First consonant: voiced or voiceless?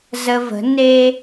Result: voiced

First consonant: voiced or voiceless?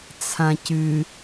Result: voiceless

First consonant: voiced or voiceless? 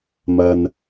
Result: voiced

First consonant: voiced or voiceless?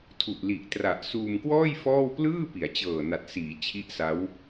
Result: voiceless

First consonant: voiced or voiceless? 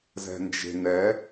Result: voiced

